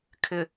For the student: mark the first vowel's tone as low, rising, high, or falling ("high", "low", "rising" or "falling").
low